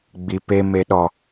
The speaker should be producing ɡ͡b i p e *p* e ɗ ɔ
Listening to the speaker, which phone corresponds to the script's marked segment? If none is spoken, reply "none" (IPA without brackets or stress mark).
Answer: m